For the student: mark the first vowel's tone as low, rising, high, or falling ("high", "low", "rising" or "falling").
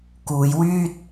low